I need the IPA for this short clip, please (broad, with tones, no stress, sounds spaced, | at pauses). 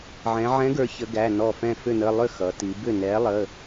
ʕ ɛ̃˩˧ ʕ ɛ̃˨˥ ɡ ə˞˩˧ ç ə˩˧ ɡ æ˩˧˩ n ɔ˧˩ f ɛ̃˧˩ f ʏ˧˩ n ə˩˧˩ lˠ ʏ˥˩ x ʌ˩˧ t i˩˧ b ʏ˥˩ n ɛ˨˥ lˠ ə˩˧˩